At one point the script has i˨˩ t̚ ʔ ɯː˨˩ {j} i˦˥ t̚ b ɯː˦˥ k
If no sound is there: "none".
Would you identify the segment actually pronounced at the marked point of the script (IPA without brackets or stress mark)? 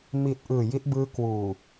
j